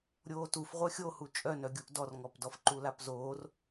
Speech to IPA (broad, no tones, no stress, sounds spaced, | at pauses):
ɾʲ oː t u f ʁʷ œ xʲ o h u t͡ʃʼ œ n œ ɡʲ u ʔ d ɔ r ŋ ɔ p d ɔ f ǃ u l a p z oː r